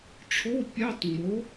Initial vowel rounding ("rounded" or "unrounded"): rounded